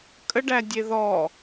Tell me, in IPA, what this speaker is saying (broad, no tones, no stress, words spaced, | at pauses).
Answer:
kʼəɖædʲe ðɔ